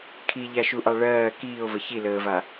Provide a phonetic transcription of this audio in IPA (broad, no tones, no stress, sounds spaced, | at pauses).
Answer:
kʰ i ʎ a ʃ u ʔ ɑ ɭ ɜː k iː o̯ v ə ç i l əː v a